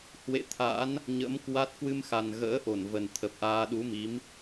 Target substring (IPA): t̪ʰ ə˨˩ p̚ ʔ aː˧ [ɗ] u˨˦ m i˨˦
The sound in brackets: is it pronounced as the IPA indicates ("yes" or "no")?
yes